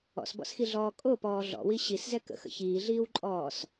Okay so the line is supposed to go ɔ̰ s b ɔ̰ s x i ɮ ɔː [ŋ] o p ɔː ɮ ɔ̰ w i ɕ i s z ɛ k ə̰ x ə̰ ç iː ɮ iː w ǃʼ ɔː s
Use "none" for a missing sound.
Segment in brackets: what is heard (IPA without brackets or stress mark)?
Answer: kʼ